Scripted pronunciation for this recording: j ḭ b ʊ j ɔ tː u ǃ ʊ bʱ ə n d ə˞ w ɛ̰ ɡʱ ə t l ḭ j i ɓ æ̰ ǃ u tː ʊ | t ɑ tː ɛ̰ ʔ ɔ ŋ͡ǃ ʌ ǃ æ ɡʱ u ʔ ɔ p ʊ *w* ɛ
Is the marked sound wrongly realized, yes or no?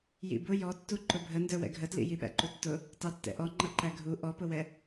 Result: no